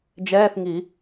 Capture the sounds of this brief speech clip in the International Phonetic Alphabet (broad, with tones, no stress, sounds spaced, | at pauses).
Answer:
d͡ʒ ɛː˧˥˧ θ ŋ i˨˩˦